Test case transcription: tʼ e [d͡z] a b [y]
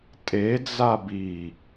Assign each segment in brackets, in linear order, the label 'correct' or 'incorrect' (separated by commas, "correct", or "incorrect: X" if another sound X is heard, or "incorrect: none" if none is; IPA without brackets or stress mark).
correct, incorrect: i